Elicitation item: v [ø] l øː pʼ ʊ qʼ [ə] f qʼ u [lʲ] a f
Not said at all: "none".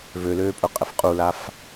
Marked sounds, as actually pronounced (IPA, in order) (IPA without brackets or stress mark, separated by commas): ø, ə, l